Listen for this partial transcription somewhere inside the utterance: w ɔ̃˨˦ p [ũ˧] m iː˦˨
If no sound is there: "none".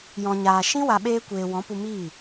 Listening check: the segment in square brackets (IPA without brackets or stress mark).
u˧